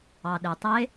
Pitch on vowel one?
low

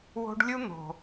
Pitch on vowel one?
high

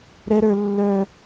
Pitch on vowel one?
high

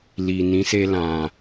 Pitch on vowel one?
low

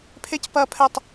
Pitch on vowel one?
high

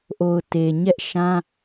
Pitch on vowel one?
low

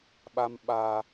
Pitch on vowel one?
high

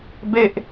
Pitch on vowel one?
high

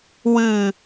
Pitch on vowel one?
low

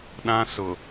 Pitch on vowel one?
high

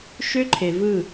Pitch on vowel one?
high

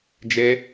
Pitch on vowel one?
high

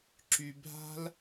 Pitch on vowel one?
low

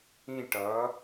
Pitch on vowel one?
falling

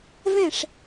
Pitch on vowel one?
falling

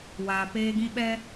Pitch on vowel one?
low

